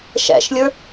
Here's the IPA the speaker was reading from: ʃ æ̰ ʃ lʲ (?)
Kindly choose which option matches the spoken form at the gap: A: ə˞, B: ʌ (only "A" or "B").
A